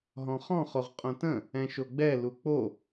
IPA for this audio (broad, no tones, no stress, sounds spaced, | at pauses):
ɦ ɔ̃ χ ɔ̃ χ o ʁ qʼ õ t ə̃ | ɛ̃ ʃ o ɡ͡b ɛ l u k͡p o